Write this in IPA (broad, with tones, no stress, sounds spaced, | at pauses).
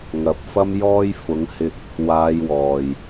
ŋ ɐ˨ p̚ f ɐ˥ m j ɔː˥ j f ʊ˨˧ ŋ h ɪ˧ k̚ | w aː˧ j w ɔː˨ j